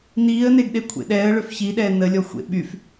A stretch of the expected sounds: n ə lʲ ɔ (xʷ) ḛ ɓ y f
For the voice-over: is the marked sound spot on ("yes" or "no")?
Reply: yes